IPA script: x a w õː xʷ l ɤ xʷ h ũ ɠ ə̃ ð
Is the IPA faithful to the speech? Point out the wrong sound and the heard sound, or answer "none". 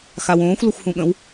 ð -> w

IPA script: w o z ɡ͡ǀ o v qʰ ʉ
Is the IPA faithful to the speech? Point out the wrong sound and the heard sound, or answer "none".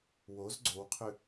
v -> w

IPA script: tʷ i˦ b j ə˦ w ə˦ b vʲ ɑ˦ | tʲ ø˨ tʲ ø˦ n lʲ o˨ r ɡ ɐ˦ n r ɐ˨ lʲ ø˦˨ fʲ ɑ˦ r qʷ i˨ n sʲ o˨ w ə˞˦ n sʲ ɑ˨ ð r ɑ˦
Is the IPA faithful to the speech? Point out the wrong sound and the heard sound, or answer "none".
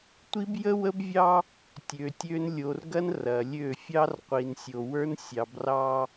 ð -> b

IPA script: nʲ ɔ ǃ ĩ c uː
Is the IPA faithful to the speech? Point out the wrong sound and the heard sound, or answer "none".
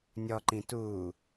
c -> t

